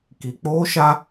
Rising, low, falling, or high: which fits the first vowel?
low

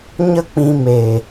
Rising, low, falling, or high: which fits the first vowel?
high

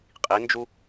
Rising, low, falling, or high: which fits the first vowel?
rising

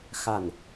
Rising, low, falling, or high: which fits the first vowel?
falling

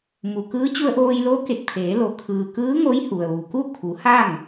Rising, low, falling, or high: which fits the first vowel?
low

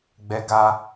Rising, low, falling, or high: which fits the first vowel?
high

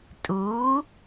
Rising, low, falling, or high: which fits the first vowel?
rising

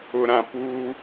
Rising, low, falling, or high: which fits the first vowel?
low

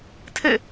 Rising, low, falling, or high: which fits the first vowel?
falling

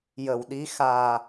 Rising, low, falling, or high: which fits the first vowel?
low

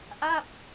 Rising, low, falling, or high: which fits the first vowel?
falling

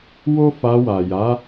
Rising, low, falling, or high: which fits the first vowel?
high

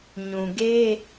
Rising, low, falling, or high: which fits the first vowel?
low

